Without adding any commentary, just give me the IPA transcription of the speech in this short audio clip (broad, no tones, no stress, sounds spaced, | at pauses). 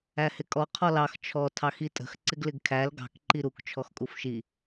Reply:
æ h ɪ kʼ ɔ qʰ ɔ l ɑ x t͡ʃʰ ɔ tʰ ɑ x i tʼ ə̤ x ǀ ɪ ɡ l ɪ ɡ kʰ æ l ɡ ɑ̤ k ǃ i ɾ u k t͡ʃʰ ɔ x kʼ u f ʃ i